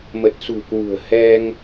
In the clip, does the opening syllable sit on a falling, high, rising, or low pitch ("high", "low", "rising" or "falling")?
low